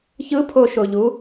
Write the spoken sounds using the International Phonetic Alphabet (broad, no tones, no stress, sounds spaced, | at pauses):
ç ɯ pʰ o ʃ o ʎ u